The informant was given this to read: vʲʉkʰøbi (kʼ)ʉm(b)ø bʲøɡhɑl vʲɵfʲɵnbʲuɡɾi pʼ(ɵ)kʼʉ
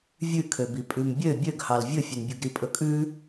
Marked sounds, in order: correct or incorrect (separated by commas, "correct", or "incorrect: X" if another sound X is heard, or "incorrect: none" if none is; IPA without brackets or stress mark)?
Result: incorrect: pʼ, incorrect: bʲ, correct